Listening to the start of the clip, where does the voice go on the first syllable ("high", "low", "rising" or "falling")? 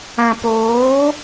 low